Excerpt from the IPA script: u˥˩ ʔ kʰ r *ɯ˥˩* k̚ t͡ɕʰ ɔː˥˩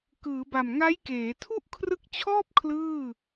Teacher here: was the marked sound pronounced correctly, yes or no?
no